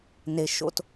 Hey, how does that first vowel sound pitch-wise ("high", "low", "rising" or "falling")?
high